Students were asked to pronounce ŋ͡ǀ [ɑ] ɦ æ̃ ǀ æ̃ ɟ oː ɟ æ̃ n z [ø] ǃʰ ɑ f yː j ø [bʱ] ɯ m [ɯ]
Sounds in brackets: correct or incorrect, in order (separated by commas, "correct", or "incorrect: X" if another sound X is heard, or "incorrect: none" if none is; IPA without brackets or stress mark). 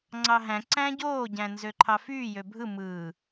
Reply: correct, correct, correct, correct